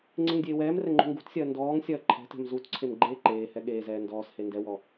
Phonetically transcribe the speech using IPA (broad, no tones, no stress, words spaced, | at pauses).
ŋ͡ǀeŋdʲeːwɛːmrɛ ŋ͡ǃṳŋɡṳtsʲɐː ndɔːŋ sʲɐːǃʰɛ̤tɛ̤m zutǀʰem ɡ͡ǃeːǃeːhɛ ɠeːzɛː ndɔːshe ndɛwɔ